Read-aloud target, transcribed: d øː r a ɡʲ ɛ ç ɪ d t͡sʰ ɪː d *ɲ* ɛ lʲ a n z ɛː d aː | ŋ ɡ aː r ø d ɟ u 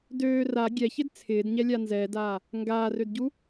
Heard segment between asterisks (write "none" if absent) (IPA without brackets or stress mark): ɲ